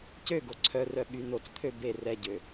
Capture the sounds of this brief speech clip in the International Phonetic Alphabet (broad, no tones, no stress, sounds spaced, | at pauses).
c ø ɡ o ǀʰ œ r œ ɓ y n o t͡s t̪ʰ ø b e r ɛ ɟ ø